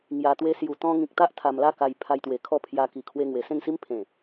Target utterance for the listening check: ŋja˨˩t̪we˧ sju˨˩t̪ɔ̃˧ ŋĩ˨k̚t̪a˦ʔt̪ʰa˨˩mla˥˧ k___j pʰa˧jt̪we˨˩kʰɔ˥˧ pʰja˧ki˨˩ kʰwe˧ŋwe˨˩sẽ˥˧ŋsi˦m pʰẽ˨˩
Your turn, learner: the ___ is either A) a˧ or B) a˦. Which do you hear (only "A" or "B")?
A